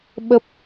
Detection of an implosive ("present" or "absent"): present